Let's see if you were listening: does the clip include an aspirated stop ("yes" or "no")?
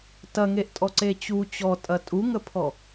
yes